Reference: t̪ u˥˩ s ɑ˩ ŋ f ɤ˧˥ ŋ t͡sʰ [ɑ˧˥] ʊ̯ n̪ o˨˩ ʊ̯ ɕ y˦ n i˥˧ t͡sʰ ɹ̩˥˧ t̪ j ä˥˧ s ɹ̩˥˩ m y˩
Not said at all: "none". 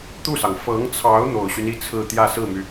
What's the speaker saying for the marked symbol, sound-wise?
ɑ˧˥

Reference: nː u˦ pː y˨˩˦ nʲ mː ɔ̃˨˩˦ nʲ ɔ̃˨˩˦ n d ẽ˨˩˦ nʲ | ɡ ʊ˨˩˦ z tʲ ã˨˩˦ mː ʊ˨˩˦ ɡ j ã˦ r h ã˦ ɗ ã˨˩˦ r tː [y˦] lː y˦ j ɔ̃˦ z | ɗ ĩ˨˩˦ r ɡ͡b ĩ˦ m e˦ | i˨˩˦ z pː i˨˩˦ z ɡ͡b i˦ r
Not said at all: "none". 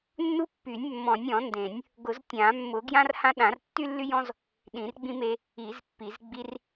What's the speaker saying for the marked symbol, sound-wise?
y˦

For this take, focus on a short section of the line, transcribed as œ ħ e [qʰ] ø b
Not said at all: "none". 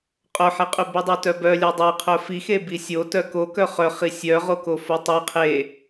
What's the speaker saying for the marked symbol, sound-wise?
qʼ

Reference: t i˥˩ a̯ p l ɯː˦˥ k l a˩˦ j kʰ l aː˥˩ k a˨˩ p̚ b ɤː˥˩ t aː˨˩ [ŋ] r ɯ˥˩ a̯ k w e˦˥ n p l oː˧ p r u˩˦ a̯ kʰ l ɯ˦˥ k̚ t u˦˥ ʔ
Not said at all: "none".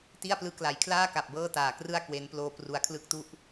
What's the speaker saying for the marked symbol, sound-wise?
k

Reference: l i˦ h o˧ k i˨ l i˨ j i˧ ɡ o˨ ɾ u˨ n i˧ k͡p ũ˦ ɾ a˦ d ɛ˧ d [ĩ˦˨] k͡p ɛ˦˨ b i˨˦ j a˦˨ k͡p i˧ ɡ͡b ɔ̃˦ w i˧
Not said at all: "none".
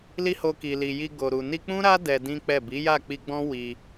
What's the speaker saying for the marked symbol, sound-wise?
ĩ˦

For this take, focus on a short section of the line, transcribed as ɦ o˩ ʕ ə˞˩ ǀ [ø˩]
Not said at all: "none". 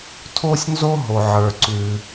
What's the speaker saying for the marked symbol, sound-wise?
ʉ˩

